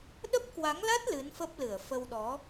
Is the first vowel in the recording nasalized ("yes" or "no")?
no